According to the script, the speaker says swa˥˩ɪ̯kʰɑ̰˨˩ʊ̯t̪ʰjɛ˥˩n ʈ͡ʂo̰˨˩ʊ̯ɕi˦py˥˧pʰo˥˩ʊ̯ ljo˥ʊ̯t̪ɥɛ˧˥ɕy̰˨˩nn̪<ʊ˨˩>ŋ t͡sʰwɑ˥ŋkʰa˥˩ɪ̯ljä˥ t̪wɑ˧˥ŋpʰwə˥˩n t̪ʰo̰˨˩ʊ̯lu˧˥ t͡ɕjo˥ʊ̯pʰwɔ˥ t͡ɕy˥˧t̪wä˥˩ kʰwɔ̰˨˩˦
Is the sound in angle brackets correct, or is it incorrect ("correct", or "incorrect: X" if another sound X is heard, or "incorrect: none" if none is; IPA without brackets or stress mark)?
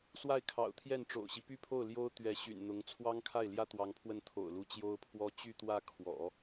incorrect: ʊ˧˥